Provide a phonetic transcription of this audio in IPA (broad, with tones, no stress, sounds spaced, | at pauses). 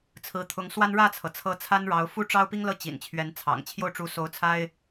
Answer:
t͡sʰ ɹ̩˧˥ t̪ʰ ʊ˧˥ ŋ s w a˥ n ɻ ä˥˩ t͡sʰ ɤ˩ t͡sʰ ɤ˧˥ t͡sʰ a˥ n ɻ ɑ˧˥ ʊ̯ f u˥˩ ʈ͡ʂ ɑ˥ ʊ̯ p i˥ ŋ l ɤ˥˩ t͡ɕ ḭ˨˩ n t͡ɕʰ ɥ ɛ˧˥ n t͡sʰ ɑ̰˨˩ ŋ t͡ɕʰ j o˥˩ ʊ̯ ʈ͡ʂ u˧˥ s o˧˥ ʊ̯ t͡sʰ a˥ ɪ̯